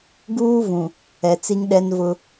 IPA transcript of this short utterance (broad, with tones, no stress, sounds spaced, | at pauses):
ɡ uː˦ v ũ˨ | ɛ˨ t͡s i˦ ŋ ɗ ɛ˦ n v ʊ˦